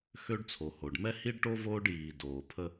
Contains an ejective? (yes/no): no